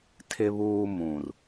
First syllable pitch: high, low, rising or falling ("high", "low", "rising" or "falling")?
low